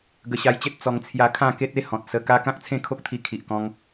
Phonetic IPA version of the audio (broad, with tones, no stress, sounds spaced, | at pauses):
ɡ ə˧ ɕ a˧ j t͡ɕ e˦ t̚ t͡s ɔ˧ ŋ t͡sʰ j a˦ kʰ ã˥˧ k e˦ t̚ e˦ h ɔ̃˨ t̚ s ə˧ k a˦ k ã˦ k̚ t͡sʰ ẽ˥˧ kʰ o˦ k̚ t̪ʰ i˧ kʰ i˨ ʔ k ɔ̃˧ ŋ